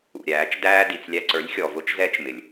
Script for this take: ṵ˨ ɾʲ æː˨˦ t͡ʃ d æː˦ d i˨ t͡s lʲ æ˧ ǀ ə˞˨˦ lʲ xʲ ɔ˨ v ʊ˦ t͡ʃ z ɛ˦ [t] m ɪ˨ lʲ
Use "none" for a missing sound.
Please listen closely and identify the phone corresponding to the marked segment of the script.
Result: t͡ʃ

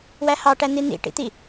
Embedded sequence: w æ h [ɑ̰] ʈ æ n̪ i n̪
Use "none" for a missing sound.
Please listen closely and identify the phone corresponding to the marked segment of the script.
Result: ɑ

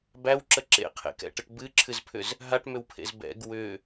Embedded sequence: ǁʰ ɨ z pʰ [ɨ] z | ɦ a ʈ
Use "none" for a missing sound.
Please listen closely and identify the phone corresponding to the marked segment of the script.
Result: ʏ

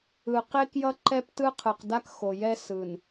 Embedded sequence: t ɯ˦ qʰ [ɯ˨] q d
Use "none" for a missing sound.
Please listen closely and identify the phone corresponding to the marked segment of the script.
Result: ɯ˨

